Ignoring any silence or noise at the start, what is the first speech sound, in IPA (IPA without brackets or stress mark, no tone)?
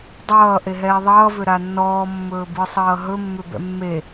dˤ